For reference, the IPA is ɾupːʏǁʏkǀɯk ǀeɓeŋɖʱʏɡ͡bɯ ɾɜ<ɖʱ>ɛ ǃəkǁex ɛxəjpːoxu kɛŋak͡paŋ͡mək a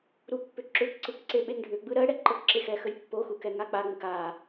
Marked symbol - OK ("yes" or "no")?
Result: no